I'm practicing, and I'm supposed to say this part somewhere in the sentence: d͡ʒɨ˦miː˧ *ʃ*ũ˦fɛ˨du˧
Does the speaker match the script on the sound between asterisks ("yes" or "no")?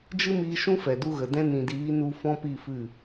yes